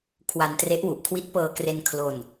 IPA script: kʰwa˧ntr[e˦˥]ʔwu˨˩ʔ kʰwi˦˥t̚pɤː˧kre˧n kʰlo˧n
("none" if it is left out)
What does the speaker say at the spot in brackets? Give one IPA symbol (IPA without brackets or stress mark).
e˦˥